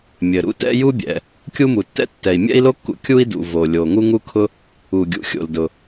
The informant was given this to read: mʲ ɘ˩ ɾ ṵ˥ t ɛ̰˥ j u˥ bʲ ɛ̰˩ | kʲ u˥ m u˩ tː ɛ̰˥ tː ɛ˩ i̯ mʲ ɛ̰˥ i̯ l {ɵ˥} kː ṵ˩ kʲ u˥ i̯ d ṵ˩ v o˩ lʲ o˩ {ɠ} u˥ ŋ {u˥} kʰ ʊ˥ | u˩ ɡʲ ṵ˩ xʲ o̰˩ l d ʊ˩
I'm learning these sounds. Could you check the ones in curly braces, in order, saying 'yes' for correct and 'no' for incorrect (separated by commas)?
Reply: no, no, yes